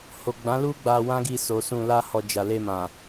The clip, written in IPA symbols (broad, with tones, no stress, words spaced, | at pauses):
ho˨ɡ͡bã˨˦lu˦ ɡ͡ba˧wã˦ɡi˧ so˨sũ˧la˦hɔ˧ d͡ʒa˨le˧mã˨